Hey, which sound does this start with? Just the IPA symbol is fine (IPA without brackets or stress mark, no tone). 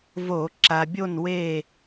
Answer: v